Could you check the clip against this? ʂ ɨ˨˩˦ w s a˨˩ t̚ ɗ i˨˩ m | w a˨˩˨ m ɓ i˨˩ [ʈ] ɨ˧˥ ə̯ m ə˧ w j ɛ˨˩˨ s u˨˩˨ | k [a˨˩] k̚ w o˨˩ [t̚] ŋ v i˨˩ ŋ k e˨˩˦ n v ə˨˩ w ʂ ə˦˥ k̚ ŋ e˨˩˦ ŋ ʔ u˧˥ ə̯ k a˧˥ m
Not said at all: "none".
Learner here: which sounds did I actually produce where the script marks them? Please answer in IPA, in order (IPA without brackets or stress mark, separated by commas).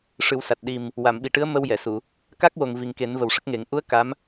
ʈ, a˦˥, none